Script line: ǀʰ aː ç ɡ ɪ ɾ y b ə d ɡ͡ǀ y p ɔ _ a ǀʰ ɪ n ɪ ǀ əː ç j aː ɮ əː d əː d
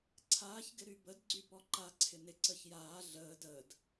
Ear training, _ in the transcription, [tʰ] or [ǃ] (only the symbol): ǃ